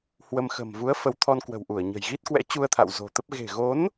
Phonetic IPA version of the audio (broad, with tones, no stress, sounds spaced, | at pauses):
h w ə˧ m x ə̤˨˩ m v u˨˦ ə̯ f ə˨˦ w t̪ʰ ɔ˧ n k w ə̤˨˩ w ʔ u˧˩ ə̯ ɲ ə̤˨˩ j ɣ i˦˥ t̚ k w ɛ̰˧˥ t͡ɕ u˧ ə̯ t̪ʰ a̰˧˨ w z o̤˨˩ t̪ ə˦˥ p̚ ɣ e̤˨˩ ɣ o˨˦ n